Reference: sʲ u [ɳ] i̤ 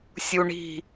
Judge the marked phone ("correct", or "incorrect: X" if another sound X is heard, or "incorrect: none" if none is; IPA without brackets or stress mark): correct